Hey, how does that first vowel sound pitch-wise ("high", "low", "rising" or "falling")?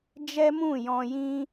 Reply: high